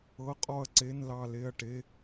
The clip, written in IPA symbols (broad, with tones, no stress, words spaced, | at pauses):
ɤ˧˥˧qʼɔ˥˨ɐ̯ǀe˧˥˧n lɑ˥˨le˥˨ɐ̯ʈe˧˥˧